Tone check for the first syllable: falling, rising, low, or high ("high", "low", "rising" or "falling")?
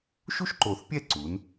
high